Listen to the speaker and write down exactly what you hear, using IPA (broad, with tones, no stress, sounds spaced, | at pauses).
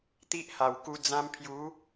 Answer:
t̪ i˦ ʔ h a˨˩ w k u˧ d͡z ã˧ m pʰ j u˨˦